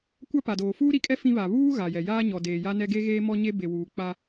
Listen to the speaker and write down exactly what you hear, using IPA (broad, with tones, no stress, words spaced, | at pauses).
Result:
kʷa˦pa˨doː˨ fuː˦ɾi˨˦kʼɛ˦ fĩ˦βa˨ βuː˦ ɣa˨jɛ˨ jaː˦ ɲɔ˨deː˨ja˦nɛ˦ ɡe˦ɣeː˦mɔ˦ɲe˦ be˨wuː˨ k͡pa˦